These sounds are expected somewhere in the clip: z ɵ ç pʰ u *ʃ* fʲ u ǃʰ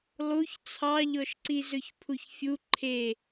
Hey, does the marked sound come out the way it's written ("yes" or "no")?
no